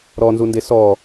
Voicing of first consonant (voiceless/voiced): voiced